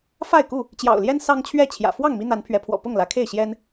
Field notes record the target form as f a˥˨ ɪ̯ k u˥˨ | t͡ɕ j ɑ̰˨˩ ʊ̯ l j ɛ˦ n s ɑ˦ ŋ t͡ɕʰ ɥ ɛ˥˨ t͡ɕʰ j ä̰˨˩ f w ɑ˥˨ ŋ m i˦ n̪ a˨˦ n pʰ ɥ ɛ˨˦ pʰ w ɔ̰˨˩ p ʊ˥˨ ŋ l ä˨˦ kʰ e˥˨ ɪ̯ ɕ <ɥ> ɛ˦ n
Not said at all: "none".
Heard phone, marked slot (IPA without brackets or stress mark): j